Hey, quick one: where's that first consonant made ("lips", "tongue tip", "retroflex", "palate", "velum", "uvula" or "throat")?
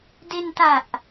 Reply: tongue tip